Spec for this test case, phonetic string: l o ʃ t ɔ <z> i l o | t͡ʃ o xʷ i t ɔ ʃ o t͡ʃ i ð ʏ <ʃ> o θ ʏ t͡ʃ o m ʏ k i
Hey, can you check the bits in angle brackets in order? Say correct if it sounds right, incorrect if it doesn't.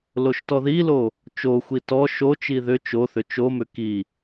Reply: incorrect: ð, incorrect: t͡ʃ

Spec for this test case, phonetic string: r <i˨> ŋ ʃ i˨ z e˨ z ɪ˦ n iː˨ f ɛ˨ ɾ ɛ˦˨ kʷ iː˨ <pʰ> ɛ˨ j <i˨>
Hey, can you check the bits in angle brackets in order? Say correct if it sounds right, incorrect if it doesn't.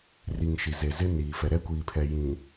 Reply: correct, correct, incorrect: ĩ˨

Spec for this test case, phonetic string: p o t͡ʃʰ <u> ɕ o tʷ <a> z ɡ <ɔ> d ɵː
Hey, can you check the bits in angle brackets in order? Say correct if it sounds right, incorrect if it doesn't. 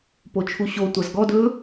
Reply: correct, correct, correct

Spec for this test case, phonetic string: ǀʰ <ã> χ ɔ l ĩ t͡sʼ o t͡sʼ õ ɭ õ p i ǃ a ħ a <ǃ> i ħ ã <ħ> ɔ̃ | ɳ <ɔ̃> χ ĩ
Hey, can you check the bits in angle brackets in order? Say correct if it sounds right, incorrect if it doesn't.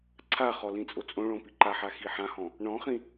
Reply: incorrect: a, incorrect: x, incorrect: h, correct

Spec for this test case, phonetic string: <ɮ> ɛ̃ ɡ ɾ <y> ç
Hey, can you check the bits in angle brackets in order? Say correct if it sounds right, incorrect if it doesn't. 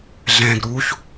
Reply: correct, incorrect: u

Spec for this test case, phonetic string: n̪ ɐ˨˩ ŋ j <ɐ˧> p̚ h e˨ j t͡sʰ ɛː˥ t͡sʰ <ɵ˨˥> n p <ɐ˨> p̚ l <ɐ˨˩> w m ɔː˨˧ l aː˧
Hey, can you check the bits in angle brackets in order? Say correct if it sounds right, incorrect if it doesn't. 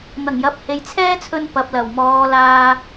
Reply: incorrect: ɐ˨˥, incorrect: ɵ˧, correct, correct

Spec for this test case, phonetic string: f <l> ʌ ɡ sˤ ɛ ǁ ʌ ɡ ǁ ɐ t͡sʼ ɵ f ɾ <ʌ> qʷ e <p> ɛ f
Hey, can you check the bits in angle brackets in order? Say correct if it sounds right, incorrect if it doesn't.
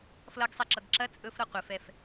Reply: correct, correct, incorrect: f

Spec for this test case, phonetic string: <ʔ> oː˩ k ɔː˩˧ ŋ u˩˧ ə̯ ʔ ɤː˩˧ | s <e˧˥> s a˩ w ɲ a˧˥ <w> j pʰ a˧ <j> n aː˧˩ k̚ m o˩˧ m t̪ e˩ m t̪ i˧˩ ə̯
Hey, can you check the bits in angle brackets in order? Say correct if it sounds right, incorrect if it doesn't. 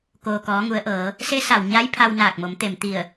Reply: incorrect: k, correct, incorrect: none, incorrect: w

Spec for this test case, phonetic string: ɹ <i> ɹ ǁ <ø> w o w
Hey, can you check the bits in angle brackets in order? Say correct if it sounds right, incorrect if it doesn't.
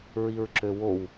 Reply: correct, correct

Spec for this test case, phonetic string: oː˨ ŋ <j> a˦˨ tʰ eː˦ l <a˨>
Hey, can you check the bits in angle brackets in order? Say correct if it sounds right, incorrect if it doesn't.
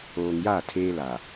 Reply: correct, correct

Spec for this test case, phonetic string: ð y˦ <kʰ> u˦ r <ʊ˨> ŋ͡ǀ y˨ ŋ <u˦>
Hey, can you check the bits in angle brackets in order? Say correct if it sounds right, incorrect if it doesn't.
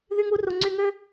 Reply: incorrect: ŋ, incorrect: u˨, incorrect: ø˦

